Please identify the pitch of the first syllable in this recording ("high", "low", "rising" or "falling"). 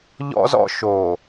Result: high